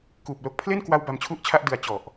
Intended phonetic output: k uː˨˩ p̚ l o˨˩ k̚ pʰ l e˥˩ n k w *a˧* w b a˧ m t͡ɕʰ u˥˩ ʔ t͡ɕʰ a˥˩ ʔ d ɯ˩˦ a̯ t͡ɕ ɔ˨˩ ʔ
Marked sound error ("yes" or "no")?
no